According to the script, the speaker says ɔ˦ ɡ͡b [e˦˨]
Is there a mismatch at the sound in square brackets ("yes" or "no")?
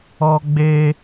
yes